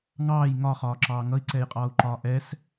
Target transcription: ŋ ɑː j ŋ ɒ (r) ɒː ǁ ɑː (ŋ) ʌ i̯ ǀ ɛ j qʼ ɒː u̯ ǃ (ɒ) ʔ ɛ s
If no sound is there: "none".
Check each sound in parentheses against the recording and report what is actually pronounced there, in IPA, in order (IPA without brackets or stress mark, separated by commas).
χ, ŋ, ɒː